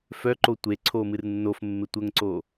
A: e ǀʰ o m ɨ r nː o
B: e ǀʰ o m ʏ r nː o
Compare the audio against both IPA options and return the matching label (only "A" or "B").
A